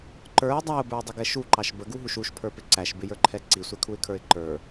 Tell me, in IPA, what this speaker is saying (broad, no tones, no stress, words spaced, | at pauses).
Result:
ǃə˞ɪ̯ dˤæʊ̯bə˞ɪ̯dˤɪɡɛ ʃuǃɑʃ bəɡuɦuʃ uʃpʰə˞pɪ ǀæʃbɪjə˞ǃʰɛ ǀisʷɛkʰuɪ̯kʰə˞ɪ̯ ǃə˞